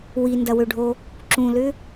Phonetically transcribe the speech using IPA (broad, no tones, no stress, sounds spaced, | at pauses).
w i n d ɐ w ø ɖʱ o | ǁ ũ l ʏ